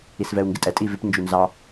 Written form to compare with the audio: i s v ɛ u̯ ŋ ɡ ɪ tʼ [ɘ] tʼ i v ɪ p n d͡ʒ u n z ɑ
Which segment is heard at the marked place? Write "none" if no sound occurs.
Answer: ɛ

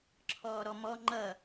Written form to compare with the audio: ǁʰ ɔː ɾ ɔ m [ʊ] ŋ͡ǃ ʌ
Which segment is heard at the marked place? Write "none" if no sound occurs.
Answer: ɔ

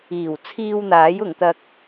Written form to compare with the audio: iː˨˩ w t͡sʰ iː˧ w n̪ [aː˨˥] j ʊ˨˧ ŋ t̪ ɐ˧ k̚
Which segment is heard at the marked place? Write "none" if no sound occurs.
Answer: aː˨˥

